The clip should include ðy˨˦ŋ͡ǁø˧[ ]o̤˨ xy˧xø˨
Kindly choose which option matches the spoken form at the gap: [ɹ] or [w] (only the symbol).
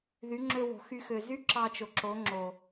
w